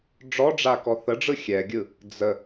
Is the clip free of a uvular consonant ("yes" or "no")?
yes